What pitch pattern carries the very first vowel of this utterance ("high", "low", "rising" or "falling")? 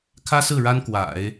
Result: high